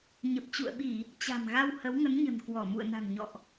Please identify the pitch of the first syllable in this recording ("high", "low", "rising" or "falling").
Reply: low